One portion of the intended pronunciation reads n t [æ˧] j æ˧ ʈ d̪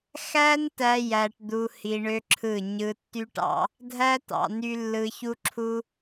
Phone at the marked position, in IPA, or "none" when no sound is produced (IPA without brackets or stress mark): æ˦